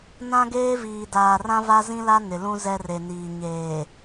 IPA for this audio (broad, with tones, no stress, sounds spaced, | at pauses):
n ã˦ ɡ eː˦ v iː˨ d aː˨ r ã˦ v a˦ z ĩ˦ l a˦ n ɪ˨ l ũ˦ z ɛ˦ r e˨ n iː˨ ɲ eː˨